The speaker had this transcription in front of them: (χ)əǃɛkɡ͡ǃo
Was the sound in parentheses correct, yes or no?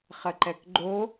yes